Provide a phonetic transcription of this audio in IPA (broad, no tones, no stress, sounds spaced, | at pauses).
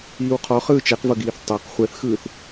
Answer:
iː w qʰ ɔ χ ɯː t͡ʃ ɛ q v ɤ ɡ iː θ tˤ e q χʷ ɛ θ x ɯː θ